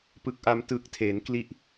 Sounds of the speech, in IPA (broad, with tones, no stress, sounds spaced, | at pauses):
p ɯ˨˩ k̚ ʔ a˧ m t ɯː˨˩ k̚ tʰ eː˩˦ n k l i˦˥ ʔ